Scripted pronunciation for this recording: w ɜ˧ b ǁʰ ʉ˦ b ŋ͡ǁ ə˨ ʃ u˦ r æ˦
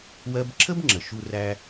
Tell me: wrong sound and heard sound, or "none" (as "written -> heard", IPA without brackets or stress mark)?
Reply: ʉ˦ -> ə˦